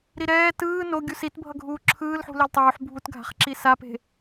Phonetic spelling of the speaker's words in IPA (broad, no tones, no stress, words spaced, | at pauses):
ɾiɾɛː tɯː no ɡʲusitbʱʌ ɡʱuːǁʰɯːlħṳ lɛltˤuːħ bʱutɡʱa̤χǁi sape̤